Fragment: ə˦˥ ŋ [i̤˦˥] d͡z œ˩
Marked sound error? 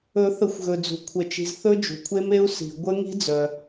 no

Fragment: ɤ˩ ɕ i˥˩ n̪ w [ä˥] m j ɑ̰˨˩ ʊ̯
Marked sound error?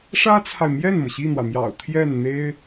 yes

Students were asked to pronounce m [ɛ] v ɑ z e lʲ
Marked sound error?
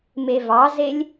yes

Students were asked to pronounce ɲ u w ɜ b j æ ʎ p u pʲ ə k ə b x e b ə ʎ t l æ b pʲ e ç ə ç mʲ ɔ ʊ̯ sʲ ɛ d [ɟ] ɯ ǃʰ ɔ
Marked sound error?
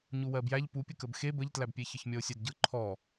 no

